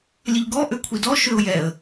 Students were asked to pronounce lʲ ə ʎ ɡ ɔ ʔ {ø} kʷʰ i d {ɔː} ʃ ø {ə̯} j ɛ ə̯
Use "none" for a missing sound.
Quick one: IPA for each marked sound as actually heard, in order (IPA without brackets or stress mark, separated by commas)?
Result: ø, ɔ, ʊ̯